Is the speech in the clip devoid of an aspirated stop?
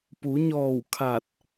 no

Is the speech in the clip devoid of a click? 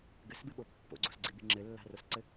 no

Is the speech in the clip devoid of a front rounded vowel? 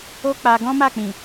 yes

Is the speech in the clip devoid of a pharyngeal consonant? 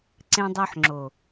no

